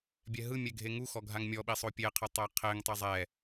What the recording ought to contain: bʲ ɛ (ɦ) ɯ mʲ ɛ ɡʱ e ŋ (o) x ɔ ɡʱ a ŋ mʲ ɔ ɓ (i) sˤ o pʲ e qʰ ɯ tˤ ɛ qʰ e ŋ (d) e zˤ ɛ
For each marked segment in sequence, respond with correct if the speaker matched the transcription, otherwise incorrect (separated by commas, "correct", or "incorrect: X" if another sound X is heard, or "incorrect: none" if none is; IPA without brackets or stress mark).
correct, incorrect: u, correct, incorrect: tˤ